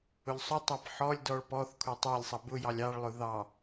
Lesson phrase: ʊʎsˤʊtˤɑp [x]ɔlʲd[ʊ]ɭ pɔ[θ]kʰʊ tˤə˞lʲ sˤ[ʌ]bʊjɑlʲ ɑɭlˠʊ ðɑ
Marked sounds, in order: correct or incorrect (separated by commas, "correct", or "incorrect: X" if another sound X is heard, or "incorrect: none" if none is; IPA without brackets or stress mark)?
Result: incorrect: ħ, incorrect: ɔ, correct, correct